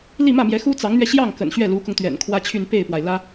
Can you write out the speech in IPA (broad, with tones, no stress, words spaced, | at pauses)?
li˥˧mä˥˩mjɛ˧˥ xu˥t͡sɑ˧˥ŋn̪ɥɛ˧ ɕjɑ˥˩ŋ kə̰˨˩nɕɥɛ˥˩lu˧˥kʊ˧ŋ t̪ɥɛ̰˨˩nkʰwä˥t͡ɕʰy˥˧n pe˥˩ɪ̯pwa˩ɪ̯ lä˥